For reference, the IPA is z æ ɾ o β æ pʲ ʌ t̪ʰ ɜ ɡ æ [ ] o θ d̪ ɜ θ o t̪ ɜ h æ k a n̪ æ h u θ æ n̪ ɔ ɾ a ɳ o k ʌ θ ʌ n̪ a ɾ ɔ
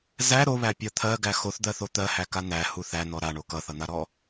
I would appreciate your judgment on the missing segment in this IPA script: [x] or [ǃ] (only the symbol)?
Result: x